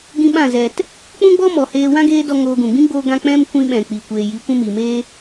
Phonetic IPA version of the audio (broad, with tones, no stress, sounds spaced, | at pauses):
ɡ ĩ˦ ɓ ã˦˨ z ɛ˨ t | k͡p ũ˦ ɡ͡b ɔ˦ m ɔ˨ h eː˧ w ã˦ ɡ eː˦ d ɔ˧ ŋ oː˧ ɡ ũ˨ ɡ͡b ĩ˦ ɡ͡b oː˧ ɡ ã˧ k͡p ɛ̃˦ m kʷ ĩ˧ ɓ ɛ̃˨ k͡p i˨ kʷ eː˨ j i˨˦ kʷ ũ˦ m iː˨ m eː˦